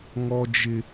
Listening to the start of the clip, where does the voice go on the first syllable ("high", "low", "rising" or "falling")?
high